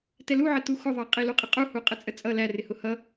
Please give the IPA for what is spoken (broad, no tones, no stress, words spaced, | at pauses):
tɛluʕə tuxʊðˤɑ qʼiluqʼɪqʼu huqʼət͡sʼət͡sʼʌ lærɪhʊ hʌ